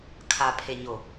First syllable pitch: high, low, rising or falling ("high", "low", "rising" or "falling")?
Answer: low